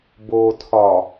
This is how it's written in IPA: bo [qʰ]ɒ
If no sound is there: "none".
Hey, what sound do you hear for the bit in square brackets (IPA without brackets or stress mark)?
tʰ